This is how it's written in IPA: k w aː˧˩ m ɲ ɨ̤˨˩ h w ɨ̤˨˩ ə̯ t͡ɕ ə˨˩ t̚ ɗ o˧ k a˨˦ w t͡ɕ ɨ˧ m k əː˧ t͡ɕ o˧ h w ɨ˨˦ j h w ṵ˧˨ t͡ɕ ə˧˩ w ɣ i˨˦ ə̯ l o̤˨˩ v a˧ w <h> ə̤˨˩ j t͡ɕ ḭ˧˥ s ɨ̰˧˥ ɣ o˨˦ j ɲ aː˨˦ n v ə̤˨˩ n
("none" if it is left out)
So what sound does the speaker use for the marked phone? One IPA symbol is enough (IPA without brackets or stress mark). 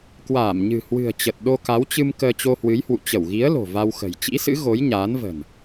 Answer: x